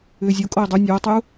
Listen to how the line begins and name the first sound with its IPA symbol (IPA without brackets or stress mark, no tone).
ʏː